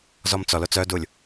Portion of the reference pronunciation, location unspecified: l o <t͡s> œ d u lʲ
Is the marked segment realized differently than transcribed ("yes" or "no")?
no